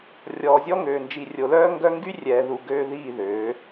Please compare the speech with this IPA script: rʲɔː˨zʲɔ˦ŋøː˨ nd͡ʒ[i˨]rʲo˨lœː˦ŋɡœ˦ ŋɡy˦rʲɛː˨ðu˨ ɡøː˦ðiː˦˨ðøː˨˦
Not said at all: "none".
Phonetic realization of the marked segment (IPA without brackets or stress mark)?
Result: i˨